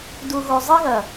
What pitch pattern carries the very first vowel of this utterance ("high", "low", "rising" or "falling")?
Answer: low